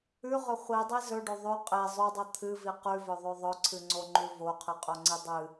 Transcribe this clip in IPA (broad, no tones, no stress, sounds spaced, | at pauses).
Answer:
ʉ ʁ ɵ χʷ i dˤ i z ɵ ɖ o ðˤ ʉ qʼ e zˤ ʉ dˤ o t̪ʰ ɨ v i q ʉ v ɵ ðˤ ʉ ðˤ ɵ ǀʰ ɨ ŋ͡ǀ o ŋ͡ǃ ʉ v o qʰ ɨ qʼ o ŋ͡ǀ i dˤ ɨ